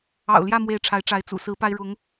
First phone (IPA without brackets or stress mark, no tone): ɑ̰